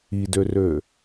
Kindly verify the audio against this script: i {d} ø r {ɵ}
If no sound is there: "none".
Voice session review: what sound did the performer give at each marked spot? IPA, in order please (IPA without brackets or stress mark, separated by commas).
d, ø